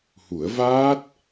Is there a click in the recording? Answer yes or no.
no